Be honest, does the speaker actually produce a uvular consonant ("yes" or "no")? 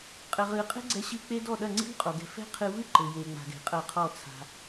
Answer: yes